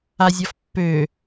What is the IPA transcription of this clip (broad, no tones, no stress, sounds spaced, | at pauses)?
a zʲ ɒ f pː ø